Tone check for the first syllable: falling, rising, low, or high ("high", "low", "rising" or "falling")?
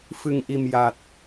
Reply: low